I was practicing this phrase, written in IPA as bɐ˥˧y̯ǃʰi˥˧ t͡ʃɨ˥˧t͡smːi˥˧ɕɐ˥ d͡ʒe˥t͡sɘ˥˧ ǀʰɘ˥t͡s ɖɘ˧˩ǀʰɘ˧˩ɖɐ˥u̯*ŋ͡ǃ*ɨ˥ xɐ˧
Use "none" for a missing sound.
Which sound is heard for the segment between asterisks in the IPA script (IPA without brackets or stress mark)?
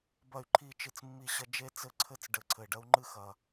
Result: ŋ͡ǃ